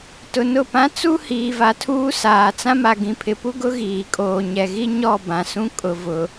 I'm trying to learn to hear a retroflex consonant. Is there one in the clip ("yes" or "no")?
no